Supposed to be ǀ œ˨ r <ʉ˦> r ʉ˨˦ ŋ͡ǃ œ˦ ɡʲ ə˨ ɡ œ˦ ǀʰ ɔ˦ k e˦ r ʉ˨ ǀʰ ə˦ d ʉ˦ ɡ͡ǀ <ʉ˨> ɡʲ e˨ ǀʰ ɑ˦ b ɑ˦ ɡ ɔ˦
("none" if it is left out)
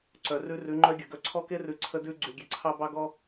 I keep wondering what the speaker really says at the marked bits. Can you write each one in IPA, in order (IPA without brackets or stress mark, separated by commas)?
ʉ˦, ʉ˨